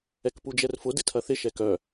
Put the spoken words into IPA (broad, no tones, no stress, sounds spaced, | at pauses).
ɛ k p u d͡ʒ ɛ r f ʊ d ɪ tʰ ɐ θ ɪ ʃ ɛ k œ